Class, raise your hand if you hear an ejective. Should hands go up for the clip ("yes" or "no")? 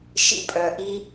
yes